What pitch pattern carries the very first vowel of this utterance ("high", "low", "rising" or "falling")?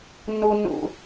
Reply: high